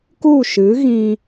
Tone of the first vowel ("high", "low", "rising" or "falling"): falling